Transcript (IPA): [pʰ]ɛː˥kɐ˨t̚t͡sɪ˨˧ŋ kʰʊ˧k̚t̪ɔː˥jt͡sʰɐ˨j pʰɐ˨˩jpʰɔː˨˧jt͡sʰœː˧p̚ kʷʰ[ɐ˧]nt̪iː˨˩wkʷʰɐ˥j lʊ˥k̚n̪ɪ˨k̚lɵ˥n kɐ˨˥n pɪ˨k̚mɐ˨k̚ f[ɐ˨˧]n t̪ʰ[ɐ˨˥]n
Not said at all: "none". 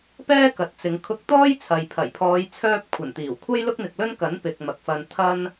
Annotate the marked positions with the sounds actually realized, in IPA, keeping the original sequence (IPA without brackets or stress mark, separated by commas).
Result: p, ɐ˨˩, ɐ˧, ɐ˥